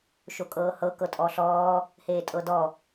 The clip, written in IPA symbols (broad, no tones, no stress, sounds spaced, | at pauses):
ʃ o kʼ ɤː h ɤ k ɤ tʼ ɔ ɬ ɔː | h eː tʼ ɤ d ɔ